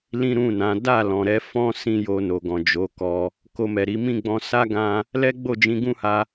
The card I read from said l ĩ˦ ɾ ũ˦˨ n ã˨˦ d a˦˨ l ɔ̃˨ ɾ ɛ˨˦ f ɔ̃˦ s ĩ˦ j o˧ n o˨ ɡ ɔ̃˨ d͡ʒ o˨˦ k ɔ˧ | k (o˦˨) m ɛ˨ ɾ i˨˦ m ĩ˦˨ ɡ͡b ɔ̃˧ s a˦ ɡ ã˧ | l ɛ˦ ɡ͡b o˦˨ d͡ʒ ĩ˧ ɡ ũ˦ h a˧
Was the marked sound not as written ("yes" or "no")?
yes